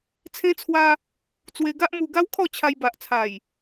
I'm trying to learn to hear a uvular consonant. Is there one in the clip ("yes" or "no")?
no